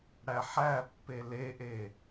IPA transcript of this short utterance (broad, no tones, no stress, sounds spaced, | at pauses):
ɽ æ ħ æ pː e l e ʔ e